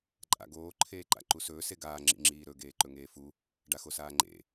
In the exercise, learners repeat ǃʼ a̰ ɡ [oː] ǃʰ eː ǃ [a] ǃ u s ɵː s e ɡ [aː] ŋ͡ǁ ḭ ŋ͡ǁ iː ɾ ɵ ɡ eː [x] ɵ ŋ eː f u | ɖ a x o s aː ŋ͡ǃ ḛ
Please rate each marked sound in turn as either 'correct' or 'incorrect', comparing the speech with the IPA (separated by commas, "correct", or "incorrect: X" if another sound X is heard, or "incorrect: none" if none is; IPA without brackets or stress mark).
correct, incorrect: a̰, correct, incorrect: ǃ